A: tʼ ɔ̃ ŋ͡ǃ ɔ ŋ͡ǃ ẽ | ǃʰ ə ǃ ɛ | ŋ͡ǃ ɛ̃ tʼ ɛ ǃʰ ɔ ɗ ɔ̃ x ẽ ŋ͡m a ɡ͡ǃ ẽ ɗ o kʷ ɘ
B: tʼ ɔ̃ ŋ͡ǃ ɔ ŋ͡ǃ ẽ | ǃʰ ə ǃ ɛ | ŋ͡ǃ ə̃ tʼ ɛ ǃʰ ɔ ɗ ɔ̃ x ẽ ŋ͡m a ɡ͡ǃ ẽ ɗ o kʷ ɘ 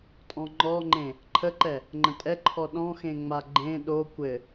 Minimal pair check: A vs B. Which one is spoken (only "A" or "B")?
B